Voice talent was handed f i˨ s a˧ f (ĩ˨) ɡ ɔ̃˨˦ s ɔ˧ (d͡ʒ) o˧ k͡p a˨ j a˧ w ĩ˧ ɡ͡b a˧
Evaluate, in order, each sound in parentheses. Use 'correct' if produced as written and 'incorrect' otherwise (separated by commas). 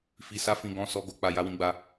correct, incorrect